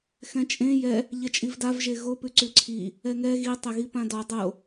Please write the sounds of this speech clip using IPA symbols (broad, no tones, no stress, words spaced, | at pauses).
xɛ̃t͡ʃʼẽ jɛ | ʎɛt͡ʃʼivdav ʒeɣo pʉǀʉǀʰi | ɛŋɛ ɣi tˤɛɣipãdɔ dˤo